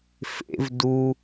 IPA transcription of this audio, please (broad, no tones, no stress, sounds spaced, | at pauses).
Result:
f ḛ v d u